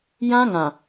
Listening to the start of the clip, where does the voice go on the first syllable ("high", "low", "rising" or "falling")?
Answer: high